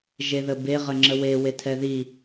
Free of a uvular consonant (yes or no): no